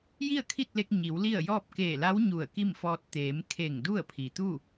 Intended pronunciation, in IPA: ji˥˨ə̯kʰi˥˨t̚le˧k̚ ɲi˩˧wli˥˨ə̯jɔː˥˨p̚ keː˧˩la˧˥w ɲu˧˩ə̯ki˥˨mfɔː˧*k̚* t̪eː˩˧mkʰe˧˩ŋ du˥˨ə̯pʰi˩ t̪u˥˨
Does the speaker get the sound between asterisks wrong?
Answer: yes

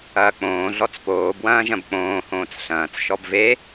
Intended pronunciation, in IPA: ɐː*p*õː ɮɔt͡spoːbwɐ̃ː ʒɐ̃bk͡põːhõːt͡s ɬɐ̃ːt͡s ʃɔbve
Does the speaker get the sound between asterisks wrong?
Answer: yes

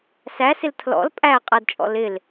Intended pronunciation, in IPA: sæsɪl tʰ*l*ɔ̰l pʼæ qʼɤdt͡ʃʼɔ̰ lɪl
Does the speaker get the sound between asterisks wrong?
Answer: no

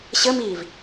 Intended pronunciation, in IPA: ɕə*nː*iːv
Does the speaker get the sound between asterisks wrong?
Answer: yes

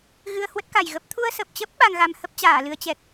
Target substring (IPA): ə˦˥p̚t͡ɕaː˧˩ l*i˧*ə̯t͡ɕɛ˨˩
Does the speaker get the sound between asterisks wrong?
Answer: yes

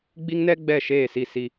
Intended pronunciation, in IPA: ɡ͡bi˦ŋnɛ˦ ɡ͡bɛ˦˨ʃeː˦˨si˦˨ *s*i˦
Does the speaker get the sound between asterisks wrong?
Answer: no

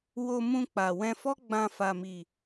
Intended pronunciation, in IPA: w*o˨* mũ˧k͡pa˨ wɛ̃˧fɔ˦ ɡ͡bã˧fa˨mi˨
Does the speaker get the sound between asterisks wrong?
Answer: yes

